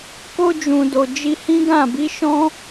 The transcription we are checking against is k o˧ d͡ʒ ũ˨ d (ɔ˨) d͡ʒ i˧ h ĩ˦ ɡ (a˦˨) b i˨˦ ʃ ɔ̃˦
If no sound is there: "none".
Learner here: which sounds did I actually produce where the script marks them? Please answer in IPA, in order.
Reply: o˨, ã˦˨

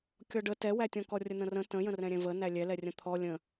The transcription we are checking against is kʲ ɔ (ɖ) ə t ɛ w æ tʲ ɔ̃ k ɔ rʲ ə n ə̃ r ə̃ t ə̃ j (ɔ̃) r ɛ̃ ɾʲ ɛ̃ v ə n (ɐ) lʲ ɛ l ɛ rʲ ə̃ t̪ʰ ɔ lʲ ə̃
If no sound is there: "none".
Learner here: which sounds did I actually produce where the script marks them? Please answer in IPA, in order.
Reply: ɖ, ə̃, æ

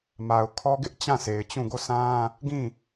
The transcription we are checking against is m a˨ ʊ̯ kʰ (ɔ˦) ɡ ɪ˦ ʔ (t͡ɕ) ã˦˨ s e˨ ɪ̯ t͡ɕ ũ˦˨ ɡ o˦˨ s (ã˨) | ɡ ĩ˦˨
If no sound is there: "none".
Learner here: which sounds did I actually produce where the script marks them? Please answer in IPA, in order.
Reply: ɔ˦, t͡ɕ, ã˦

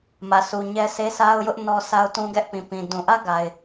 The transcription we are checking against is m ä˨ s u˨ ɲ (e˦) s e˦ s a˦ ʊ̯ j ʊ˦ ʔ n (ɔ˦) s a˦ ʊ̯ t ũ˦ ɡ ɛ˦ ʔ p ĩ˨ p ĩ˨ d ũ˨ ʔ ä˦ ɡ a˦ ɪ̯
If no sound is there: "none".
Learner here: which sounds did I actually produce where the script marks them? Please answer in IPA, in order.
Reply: ɛ˦, ɔ˦

